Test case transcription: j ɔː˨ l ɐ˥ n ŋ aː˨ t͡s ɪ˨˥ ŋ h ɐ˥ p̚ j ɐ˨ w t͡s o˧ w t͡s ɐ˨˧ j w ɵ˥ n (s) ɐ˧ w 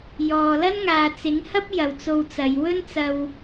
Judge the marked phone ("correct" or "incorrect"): incorrect